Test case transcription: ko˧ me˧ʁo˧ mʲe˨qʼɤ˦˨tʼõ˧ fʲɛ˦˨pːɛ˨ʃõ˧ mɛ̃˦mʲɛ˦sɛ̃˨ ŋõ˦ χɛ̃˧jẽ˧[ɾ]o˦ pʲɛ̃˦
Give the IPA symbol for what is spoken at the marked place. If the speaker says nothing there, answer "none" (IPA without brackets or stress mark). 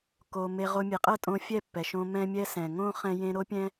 ɾ